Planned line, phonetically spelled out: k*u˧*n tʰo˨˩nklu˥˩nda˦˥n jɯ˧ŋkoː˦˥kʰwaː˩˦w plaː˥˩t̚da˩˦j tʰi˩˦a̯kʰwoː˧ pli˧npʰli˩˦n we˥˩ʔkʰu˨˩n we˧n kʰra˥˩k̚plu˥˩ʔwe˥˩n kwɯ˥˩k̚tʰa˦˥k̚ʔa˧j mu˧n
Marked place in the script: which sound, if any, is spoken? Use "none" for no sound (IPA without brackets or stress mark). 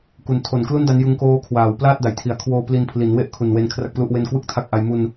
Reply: u˧